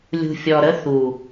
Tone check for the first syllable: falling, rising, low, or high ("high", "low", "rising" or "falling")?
low